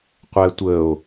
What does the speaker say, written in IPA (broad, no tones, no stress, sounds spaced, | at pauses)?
qʷ æ tʷ ə o̯